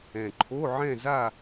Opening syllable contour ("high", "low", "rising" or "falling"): low